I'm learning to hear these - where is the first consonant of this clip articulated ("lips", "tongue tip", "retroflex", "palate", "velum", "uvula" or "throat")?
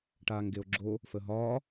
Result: retroflex